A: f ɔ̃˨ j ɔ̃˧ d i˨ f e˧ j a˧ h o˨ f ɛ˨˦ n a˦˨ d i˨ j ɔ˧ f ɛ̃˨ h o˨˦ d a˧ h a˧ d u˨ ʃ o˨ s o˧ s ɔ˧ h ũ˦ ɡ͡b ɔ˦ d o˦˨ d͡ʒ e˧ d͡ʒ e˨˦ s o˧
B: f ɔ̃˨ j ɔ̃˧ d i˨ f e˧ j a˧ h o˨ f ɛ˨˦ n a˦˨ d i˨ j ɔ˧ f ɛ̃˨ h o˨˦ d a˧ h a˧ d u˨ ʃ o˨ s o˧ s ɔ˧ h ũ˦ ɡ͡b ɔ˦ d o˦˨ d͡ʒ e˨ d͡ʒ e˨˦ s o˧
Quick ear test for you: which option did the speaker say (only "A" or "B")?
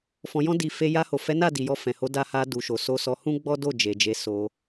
B